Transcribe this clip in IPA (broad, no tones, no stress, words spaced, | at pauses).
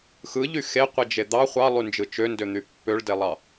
xɯʎy xeqʷid͡ʒe d̪ɑ χʷɑlˠynd͡ʒɯ t͡ʃøndøn̪y pːøɭdelˠɑ